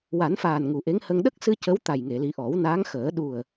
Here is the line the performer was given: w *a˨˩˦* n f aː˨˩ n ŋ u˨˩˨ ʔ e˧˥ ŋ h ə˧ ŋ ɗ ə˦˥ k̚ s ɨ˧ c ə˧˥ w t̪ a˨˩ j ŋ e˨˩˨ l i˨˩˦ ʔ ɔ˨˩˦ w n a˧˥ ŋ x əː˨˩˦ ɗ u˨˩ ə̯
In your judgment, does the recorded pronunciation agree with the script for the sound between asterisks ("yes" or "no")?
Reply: yes